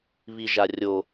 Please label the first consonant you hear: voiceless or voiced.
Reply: voiced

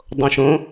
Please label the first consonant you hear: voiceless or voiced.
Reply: voiced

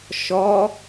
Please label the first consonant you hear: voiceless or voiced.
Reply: voiceless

